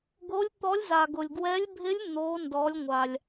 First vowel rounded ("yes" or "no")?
yes